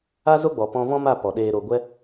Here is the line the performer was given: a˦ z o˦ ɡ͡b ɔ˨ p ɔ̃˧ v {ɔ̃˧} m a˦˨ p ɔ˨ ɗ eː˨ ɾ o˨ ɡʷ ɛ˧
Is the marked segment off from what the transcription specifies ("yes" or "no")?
yes